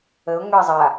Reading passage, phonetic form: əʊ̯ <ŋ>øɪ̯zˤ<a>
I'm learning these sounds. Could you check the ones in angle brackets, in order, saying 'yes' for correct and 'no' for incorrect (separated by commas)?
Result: yes, yes